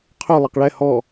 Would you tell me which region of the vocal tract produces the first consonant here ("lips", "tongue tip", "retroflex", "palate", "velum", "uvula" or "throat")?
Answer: uvula